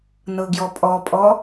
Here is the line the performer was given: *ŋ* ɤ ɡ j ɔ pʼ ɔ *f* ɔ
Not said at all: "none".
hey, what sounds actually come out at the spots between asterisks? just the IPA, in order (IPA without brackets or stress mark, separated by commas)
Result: n, pʼ